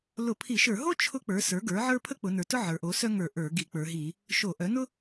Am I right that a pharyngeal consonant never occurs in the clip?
no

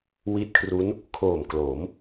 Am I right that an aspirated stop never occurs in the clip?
no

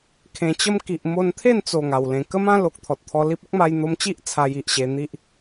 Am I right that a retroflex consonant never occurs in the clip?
yes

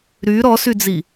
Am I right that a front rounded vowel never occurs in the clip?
no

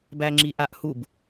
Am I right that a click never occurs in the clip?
no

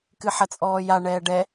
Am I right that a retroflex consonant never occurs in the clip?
no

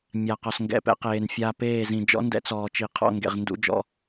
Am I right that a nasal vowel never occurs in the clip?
no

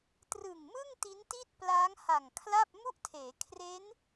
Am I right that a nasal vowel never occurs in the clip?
yes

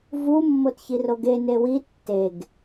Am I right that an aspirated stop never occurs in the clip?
yes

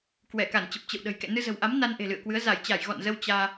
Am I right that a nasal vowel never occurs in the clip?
yes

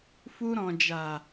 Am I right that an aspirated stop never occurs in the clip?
yes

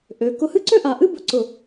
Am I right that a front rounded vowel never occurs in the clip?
no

